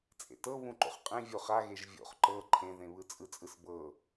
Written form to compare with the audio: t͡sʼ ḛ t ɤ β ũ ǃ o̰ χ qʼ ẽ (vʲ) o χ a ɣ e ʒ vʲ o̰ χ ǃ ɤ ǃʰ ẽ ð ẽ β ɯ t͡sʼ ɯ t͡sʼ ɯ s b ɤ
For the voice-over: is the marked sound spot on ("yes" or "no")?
yes